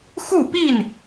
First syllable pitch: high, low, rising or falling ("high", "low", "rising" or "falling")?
falling